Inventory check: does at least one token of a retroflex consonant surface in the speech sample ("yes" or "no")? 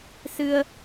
no